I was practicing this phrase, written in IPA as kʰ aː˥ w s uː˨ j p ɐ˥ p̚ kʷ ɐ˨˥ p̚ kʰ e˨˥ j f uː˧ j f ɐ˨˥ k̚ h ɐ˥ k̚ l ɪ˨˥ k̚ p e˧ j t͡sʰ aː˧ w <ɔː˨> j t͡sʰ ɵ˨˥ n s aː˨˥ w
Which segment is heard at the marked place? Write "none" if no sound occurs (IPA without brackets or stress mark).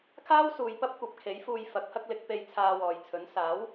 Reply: ɔː˨